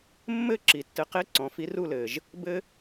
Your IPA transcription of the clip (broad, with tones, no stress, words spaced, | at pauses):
mːɘ˥˧ǁi˨ tːɘ˧˥qe˥ ǀɔ̃˩˥fi˧˥ru˥˧lɘː˨ʒ | bɘ˥